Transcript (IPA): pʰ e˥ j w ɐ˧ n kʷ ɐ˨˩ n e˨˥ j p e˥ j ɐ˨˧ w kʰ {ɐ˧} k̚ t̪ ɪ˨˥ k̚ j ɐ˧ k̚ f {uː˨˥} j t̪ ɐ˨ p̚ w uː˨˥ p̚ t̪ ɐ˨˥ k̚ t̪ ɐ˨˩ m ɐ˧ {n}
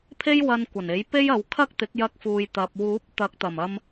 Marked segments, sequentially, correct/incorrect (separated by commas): incorrect, incorrect, incorrect